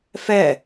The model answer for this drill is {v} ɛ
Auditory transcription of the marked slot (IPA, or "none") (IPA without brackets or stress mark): f